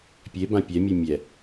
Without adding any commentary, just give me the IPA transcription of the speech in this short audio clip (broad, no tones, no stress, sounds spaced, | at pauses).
pʲ e b ã pʲ ɛ mʲ u mʲ ɛ